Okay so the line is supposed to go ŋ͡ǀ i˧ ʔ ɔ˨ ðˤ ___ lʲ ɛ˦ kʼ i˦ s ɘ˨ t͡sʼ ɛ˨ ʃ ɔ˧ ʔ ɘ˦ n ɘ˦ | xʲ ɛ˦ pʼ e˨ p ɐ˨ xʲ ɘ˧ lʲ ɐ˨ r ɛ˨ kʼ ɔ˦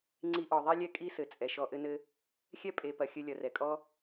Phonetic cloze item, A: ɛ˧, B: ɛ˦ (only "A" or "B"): B